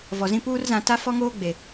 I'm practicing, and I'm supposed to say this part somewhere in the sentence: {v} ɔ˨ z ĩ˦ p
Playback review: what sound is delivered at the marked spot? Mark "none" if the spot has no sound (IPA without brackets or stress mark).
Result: v